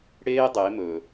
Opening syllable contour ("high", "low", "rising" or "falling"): high